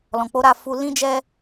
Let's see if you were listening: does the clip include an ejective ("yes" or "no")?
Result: no